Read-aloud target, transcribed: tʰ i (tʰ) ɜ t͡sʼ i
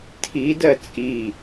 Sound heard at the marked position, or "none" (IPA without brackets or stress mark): d